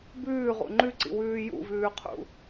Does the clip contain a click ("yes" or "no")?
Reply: yes